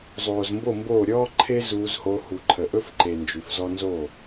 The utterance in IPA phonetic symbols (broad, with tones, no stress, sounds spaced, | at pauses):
zˤ oː˨ z m b o˦˨ m b oː˦˨ ɾʲ ɔː˦ ǃʰ e˦ z uː˧ z h o˧ h u˨ ǃʰ ə˨ ʔ ɵ˦ f ǃ e˨ n d͡ʒ ʉ˨ f z ɔ˧ n z o˦˨